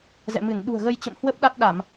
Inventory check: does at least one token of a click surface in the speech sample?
no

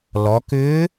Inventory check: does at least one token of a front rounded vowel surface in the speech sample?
yes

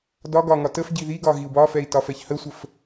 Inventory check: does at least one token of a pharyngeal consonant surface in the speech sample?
no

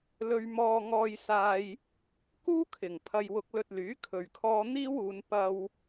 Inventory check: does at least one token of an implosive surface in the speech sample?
no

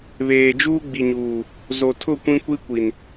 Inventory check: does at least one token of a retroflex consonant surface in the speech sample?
no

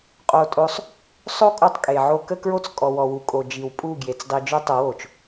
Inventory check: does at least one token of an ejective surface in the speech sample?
yes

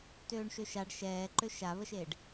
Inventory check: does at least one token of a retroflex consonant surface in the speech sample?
yes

